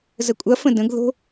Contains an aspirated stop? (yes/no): no